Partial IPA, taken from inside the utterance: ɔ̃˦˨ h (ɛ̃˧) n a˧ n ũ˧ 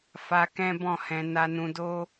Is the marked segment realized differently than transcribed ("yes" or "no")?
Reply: no